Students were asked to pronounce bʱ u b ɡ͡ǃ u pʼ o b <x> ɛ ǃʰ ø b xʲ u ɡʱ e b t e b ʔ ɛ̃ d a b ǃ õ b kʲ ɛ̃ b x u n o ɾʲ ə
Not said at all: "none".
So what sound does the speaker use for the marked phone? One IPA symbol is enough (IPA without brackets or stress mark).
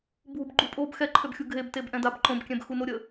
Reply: x